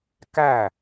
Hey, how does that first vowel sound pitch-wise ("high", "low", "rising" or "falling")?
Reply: falling